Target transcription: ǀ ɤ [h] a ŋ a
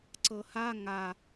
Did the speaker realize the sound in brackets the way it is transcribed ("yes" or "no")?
yes